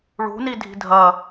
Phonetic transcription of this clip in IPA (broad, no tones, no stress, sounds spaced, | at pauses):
ɭ ṳ n i dʱ i̤ dʱ ɐ